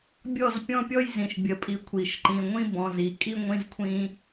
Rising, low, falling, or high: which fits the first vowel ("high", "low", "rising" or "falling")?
falling